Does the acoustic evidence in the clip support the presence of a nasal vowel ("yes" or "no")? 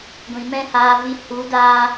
yes